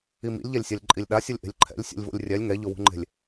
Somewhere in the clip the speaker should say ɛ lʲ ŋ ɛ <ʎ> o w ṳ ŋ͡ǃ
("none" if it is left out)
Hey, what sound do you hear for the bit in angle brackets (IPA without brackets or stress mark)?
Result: ʎ